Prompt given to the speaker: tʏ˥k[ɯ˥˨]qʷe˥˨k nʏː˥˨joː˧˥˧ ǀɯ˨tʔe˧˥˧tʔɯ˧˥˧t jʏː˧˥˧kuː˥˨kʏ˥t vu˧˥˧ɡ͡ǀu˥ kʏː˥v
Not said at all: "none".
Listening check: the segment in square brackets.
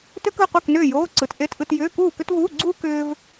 ɯ˥˨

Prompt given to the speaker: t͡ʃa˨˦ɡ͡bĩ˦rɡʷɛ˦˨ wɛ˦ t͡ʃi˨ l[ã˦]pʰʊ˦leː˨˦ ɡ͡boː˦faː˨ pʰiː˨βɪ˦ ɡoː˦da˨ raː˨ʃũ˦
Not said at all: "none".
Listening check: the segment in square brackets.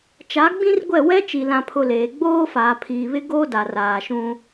ã˦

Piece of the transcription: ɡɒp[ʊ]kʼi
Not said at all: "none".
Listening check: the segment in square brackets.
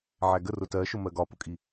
ʊ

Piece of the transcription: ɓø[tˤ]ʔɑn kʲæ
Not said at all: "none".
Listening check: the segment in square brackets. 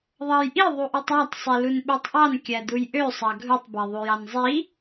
tˤ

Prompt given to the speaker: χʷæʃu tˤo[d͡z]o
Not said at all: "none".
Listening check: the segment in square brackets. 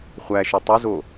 z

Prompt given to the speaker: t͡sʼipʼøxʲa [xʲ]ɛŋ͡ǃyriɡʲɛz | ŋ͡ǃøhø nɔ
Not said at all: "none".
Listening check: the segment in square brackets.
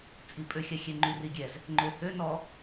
xʲ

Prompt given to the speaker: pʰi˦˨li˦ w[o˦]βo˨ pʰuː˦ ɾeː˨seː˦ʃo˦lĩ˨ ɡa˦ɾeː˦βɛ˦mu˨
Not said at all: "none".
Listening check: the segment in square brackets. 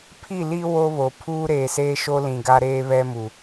o˦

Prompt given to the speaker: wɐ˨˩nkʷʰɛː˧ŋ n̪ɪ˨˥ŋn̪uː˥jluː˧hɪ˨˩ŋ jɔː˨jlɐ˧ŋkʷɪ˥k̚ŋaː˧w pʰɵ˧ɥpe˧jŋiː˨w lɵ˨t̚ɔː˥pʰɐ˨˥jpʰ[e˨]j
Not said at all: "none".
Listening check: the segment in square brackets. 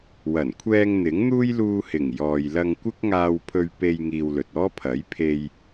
e˧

